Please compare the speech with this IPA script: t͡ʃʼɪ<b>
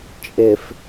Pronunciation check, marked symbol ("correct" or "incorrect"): incorrect